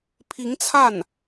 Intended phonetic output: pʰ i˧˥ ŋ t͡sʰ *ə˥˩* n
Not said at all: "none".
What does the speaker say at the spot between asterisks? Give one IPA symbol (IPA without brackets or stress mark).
a˥˩